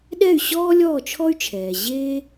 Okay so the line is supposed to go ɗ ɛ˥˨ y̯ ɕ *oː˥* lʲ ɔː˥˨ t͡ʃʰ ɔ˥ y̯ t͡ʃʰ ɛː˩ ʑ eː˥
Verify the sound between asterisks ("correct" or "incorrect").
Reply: incorrect